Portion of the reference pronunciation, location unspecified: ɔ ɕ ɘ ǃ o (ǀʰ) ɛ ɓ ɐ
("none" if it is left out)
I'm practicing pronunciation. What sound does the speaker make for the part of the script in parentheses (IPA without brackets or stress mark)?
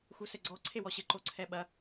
ǀʰ